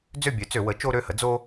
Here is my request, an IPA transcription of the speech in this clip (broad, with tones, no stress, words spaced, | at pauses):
d͡zø˥˨bʲø˩˥t͡sø˧˩˧wə˩˥ t͡ʃo˦ɾø˩˧˩hə˩˥ d͡zo˦